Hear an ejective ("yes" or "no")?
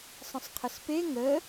no